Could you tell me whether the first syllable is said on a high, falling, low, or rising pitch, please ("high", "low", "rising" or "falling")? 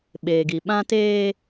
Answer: low